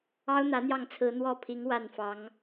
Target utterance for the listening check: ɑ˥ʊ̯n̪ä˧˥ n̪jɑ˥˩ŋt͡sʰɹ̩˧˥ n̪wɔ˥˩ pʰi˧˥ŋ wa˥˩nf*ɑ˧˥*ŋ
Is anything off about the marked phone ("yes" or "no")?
no